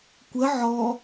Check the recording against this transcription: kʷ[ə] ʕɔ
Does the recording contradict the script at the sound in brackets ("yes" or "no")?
no